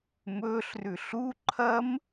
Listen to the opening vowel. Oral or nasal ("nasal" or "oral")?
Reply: oral